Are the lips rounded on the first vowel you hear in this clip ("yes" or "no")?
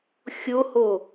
yes